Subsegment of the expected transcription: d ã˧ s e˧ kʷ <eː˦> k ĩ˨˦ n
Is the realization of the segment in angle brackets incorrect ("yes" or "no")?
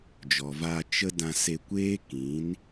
no